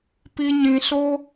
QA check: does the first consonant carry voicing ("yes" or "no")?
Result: no